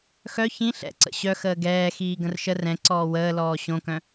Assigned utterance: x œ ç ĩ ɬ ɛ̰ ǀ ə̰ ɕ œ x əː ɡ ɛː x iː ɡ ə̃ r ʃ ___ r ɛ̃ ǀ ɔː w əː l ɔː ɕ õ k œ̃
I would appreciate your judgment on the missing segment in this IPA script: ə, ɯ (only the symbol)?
ə